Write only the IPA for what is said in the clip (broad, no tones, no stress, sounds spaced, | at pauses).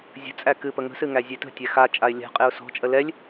zʲ ə̤ t͡sʼ æ k ɨ p ə ŋ ə̤ s ɨ ŋ æ zʲ e t ə̤ tʲ æ x a t͡ʃʼ a ɪ̯ lʲ a̤ qʼ e ʊ̯ s ɔ̤ t͡ʃʼ ə l ɛ lʲ